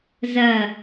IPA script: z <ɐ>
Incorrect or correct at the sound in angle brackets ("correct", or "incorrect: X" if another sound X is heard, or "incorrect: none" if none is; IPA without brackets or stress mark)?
correct